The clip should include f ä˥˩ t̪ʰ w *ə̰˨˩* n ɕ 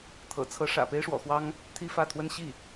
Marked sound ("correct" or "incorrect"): incorrect